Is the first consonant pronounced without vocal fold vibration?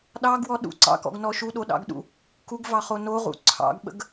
no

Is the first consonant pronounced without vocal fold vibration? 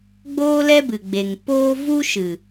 no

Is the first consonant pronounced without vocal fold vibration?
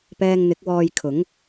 yes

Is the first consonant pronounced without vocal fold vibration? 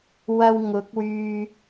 no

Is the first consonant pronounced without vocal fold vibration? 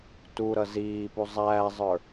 yes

